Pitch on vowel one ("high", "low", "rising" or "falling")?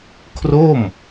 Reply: falling